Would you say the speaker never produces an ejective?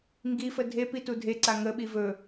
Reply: yes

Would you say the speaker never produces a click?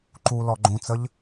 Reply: no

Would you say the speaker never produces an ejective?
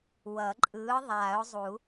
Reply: no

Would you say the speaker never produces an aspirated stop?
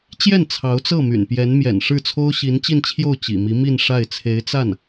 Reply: no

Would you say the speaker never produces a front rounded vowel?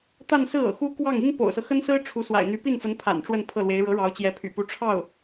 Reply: no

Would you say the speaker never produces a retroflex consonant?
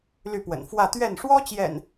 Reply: no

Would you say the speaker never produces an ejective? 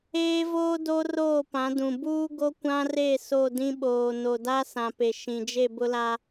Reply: yes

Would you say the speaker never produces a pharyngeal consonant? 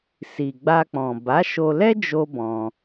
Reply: yes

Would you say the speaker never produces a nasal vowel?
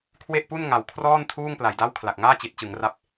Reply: yes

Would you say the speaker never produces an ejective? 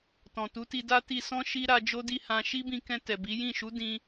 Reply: yes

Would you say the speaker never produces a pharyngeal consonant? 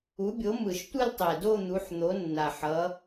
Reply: no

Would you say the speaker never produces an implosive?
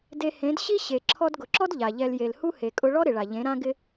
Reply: yes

